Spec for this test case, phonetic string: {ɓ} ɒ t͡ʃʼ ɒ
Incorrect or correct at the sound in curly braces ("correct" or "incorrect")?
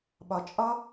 correct